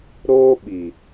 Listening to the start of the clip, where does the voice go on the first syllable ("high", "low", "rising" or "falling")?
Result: high